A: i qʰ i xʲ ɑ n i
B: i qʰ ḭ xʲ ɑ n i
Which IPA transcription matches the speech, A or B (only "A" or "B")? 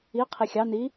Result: A